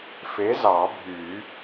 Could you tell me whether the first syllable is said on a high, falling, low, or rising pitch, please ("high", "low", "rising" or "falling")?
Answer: rising